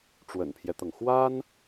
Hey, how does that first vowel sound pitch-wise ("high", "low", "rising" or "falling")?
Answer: low